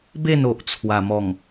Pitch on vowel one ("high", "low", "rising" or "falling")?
falling